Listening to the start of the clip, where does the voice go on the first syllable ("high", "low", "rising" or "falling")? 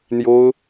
high